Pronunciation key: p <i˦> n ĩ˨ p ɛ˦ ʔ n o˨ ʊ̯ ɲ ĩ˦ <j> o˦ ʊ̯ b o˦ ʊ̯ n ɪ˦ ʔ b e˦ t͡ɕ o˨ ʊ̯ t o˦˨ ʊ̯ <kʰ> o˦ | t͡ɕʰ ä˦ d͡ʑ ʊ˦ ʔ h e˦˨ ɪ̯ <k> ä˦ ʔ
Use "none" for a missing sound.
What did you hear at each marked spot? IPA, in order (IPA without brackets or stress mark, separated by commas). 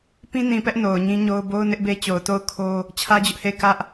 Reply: ĩ˦, ɲ, kʰ, k